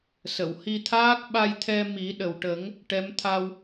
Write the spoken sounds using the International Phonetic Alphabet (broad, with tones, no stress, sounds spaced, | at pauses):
s ə˨˩˨ w h i˧ t̪ʰ aː˦˥ k̚ ɓ a˧ j t̪ʰ ɛ˧ m i˨˩˦ ɗ ə˨˩ w ʈ ə˨˩˦ ŋ | ʈ ɛ˧˥ m t̪ʰ a˧ w